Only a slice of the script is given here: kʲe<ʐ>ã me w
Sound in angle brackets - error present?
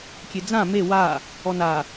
yes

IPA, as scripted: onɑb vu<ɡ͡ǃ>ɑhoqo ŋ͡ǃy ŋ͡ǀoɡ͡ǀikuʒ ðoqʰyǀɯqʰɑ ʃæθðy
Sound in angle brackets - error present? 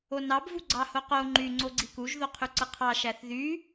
yes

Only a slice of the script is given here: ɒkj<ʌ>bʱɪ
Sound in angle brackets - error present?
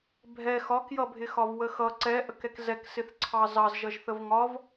no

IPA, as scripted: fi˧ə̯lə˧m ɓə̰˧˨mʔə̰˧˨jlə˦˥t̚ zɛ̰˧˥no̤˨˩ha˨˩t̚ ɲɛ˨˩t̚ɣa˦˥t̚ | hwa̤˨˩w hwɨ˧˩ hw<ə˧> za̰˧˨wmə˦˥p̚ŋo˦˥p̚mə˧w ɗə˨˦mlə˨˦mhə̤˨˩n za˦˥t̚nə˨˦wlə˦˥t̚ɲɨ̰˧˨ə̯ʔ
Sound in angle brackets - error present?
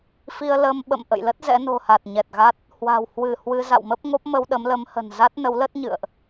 yes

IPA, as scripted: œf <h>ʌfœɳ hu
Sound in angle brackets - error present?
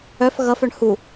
yes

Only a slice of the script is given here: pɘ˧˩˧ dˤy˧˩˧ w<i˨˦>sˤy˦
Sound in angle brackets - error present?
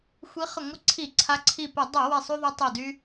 yes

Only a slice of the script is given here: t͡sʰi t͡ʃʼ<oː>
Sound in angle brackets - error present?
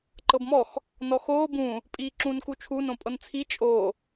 no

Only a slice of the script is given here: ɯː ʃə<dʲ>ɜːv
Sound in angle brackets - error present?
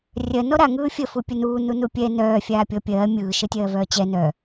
yes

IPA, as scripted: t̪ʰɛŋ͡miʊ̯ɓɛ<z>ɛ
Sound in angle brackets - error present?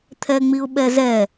no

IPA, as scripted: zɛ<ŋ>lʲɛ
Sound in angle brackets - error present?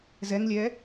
no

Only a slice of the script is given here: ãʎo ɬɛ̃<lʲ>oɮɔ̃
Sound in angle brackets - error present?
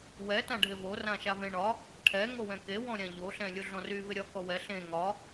no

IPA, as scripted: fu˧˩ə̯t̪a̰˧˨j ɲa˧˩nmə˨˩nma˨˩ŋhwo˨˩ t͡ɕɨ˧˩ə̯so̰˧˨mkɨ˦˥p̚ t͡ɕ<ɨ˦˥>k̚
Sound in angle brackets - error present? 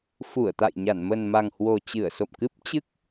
no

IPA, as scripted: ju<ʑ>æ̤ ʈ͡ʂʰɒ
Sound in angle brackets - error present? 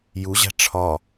no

